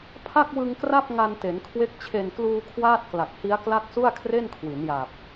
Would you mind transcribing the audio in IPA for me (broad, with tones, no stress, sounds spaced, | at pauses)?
pʰ a˥˩ k̚ w ɯ˧ ŋ k r a˥˩ p̚ ŋ a˧ n t e˩˦ n kʰ w e˦˥ k̚ t͡ɕʰ e˨˩ n k l uː˧ kʰ w aː˥˩ t̚ k l a˨˩ k̚ h i˦˥ a̯ k l a˥˩ k̚ s u˥˩ a̯ kʰ r e˥˩ n kʰ w i˩˦ n j aː˨˩ p̚